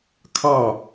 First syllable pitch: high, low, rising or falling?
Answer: falling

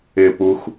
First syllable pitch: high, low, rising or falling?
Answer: falling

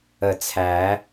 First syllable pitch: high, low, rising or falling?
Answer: low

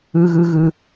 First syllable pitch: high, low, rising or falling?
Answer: high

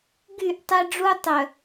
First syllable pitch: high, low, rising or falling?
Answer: falling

